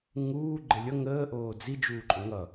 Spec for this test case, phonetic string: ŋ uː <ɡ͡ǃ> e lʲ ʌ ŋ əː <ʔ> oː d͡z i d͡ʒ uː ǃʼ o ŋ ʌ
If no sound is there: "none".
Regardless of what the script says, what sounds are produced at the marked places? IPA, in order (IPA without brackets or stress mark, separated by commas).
ɡ͡ǃ, ʔ